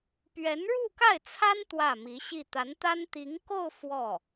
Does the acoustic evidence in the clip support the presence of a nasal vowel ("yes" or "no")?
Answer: no